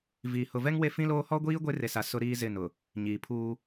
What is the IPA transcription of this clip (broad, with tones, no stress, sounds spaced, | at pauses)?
v iː˨ h ʊ˨ v ɛ˦ ŋ w e˦ f ĩ˦ l oː˦ h ɔ˦ ɡʷ iː˦ ɡʷ e˦ r e˨ s a˨ s ʊ˦ ɾ iː˦ z ɪ˦˨ n ʊ˨ | ɲ iː˨ pʰ uː˦